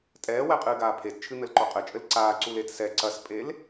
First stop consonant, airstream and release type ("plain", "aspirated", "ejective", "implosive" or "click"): ejective